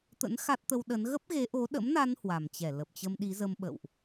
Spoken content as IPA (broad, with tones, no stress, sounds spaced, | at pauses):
t̪ ə̰˧˥ n x a˦˥ t̚ t̪ ə˧ w ɗ ə˨˦ n ɣ ə˦˥ p̚ ɣ e˨˦ ʔ o˨˦ ɗ ə̰˧˥ m n a˧ n h w a˨˩ m t͡ɕ ɛ˧˩ l ə˨˩ p̚ t͡ɕ ə˧ m ɗ i˨˦ z ə˧ m ɓ ə̰˧˨ w ʔ